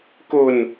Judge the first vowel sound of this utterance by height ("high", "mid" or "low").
mid